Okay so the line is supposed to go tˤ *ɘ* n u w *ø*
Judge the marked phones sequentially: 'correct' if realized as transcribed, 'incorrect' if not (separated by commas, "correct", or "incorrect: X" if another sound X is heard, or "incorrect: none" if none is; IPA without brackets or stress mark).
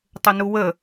correct, incorrect: ə